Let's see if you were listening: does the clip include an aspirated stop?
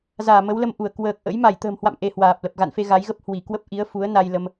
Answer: no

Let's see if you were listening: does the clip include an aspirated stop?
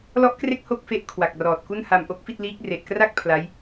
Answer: yes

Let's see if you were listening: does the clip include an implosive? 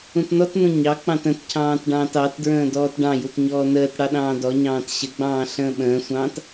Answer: yes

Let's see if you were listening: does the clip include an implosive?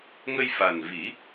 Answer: no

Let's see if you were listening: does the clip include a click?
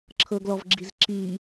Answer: yes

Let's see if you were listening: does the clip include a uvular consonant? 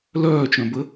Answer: no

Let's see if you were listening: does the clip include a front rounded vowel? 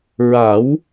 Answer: no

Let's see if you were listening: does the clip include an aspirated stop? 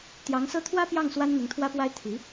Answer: yes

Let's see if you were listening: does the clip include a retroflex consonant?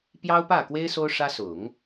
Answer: yes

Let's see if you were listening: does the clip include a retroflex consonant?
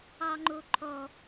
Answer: no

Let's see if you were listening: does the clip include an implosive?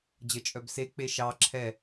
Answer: no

